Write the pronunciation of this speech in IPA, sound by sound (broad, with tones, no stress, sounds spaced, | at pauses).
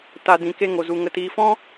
t a˧ d ĩ˨ k e˧ ŋ o˨ z u˨ ŋ ə˨ t iː˨ f ɔ̃˦